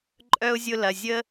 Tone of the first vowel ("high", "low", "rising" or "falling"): high